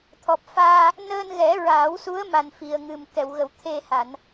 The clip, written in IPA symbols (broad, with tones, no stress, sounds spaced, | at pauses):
t̪ʰ ɔ˨˩ p̚ f aː˧ | n əː˧ n ɣ ɛ˨˩˦ ɹ aː˨˩˦ w s u˧˥ ə̯ m a˨˩ n f i˨˩ ə̯ ŋ ɨ˨˩ m k ɛ˨˩˨ w ɣ ə˨˩˨ w t̪ʰ e˧ h a˨˩˨ n